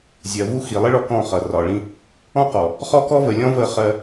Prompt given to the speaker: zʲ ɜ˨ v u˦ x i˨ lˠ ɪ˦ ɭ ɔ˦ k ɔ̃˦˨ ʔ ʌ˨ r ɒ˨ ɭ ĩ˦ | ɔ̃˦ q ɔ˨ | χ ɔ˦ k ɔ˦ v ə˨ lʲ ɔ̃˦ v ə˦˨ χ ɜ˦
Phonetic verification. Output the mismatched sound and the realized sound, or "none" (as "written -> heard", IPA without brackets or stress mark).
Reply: ʔ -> χ